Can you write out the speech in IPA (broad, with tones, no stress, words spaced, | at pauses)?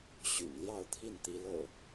ɕy̰˨˩n ljɑ˥˨ʊ̯t̪ʰi˥˨nt̪i˨˦lɤ̰˨˩